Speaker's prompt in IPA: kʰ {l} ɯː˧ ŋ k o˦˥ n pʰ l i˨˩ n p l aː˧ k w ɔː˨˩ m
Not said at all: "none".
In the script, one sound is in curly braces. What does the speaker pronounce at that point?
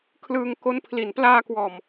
l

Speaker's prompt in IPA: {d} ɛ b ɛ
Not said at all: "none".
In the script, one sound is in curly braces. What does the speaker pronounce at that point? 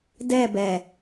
d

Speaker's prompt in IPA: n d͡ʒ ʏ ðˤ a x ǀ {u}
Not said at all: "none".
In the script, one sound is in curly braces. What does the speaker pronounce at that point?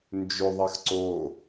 o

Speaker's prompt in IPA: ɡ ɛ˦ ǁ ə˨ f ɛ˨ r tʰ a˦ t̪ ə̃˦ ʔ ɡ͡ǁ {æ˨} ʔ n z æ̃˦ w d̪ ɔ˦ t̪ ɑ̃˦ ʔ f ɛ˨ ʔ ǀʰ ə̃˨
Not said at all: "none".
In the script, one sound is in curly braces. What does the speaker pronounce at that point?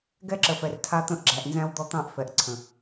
æ˨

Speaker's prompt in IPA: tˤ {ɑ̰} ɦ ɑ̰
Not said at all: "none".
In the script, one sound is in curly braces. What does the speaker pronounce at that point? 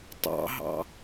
ɑ̰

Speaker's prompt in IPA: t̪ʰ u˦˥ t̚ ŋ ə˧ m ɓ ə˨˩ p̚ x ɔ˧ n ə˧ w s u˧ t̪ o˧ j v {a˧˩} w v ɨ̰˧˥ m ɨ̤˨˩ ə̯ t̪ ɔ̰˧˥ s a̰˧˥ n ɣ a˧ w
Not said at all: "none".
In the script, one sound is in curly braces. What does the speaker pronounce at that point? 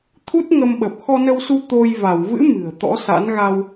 a˧˩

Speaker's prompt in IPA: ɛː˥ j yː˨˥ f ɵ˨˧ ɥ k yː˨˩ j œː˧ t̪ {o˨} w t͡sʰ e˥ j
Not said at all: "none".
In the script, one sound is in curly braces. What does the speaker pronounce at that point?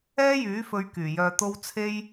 o˥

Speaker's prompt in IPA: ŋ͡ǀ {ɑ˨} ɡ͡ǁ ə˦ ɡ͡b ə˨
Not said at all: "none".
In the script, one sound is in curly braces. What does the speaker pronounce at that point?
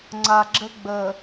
a˨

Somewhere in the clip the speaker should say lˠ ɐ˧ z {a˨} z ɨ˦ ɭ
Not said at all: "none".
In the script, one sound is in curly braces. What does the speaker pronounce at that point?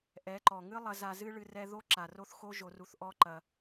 a˧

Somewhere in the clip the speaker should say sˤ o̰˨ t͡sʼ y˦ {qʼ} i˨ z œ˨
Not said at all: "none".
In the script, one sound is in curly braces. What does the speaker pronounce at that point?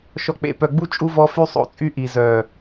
ʔ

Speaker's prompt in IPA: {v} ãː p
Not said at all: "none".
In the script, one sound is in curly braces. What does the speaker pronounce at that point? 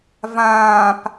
v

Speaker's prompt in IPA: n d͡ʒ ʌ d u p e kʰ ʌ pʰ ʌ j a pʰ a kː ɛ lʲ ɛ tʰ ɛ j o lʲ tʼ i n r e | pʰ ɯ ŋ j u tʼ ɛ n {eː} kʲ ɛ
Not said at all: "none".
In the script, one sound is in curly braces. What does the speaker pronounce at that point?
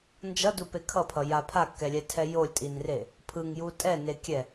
e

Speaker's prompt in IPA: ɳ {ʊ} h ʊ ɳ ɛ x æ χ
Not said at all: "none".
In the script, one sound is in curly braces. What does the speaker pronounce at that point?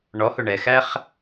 ɔ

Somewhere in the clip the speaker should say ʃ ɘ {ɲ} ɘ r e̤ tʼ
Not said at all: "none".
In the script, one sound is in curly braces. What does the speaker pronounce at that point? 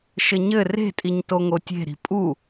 ɲ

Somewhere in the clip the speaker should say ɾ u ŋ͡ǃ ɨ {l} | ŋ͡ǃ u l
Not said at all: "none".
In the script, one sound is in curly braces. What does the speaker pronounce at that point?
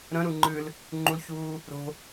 l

